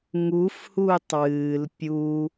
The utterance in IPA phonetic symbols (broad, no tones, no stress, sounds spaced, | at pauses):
ŋ u f h uː tˤ w ɨː l pʲ uː